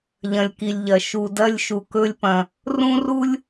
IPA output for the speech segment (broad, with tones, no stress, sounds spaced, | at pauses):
ʎ ɐ̃˩ lʲ k i˩ lʲ ʎ ɐ˩ ʃ u˩ d ɐ˧ lʲ ʃ u˩ k ɵ˧ lʲ p ɐ̃˩ | r ũ˥ r u˥ lʲ